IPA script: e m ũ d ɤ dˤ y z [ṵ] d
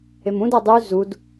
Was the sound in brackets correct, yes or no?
no